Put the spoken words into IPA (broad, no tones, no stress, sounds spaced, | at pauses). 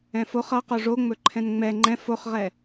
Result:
ɛ̃ f o χ ʌ q o ʐ o ŋ͡m ɵ ǃʰ ɛ̃ n ŋ͡m ɛ ŋ͡ǃ ɛ̃ f o χ ʁ ɛ